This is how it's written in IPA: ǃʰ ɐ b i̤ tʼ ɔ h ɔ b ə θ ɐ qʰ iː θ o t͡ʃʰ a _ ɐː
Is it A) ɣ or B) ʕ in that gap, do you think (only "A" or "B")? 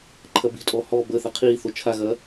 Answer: A